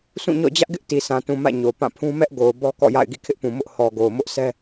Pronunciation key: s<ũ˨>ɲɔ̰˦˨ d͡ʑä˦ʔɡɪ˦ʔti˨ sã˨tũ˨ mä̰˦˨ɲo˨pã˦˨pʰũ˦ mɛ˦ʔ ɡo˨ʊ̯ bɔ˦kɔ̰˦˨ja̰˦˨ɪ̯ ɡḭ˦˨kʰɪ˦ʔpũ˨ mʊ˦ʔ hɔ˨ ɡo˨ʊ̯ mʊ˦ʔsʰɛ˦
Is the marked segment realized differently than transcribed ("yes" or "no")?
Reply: yes